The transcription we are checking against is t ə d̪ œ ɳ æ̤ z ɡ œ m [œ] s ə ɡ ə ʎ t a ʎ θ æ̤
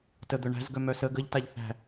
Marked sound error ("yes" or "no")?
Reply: no